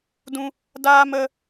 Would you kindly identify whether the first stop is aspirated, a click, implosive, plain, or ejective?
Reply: plain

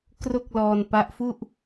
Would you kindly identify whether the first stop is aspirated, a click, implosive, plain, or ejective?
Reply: plain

